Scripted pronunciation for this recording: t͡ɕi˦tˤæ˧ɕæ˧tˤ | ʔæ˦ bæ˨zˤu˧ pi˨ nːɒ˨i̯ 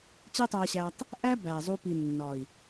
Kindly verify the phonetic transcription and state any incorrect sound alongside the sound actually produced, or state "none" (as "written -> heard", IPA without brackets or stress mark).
none